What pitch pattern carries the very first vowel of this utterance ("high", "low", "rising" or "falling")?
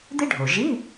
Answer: high